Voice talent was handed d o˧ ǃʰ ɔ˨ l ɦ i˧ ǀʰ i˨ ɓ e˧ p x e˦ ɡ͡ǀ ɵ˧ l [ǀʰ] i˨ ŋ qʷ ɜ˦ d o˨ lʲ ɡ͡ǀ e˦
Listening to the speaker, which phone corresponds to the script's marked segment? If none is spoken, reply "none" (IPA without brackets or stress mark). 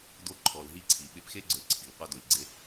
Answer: ǀʰ